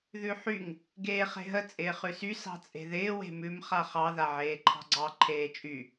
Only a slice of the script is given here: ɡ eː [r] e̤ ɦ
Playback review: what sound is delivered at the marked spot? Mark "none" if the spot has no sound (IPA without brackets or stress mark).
χ